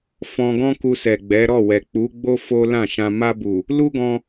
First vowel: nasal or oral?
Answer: nasal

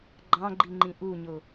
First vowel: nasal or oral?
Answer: nasal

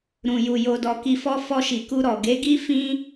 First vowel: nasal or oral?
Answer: nasal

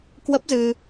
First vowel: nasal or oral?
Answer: oral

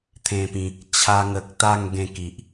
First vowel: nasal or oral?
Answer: nasal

